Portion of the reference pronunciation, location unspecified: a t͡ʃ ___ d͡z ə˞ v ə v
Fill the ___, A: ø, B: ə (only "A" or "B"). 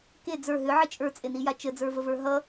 B